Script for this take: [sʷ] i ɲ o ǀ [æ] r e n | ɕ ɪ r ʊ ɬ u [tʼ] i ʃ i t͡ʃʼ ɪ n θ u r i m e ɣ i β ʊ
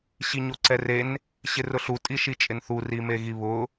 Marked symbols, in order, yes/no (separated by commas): no, no, yes